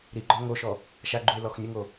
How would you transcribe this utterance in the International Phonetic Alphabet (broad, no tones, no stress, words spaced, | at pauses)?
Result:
ɾiɡ͡ǃɔ ŋoʃɔ | ʃaɡ͡ǃuɪ̯lɔx nʲəŋo